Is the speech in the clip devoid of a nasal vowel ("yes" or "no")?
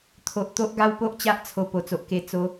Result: yes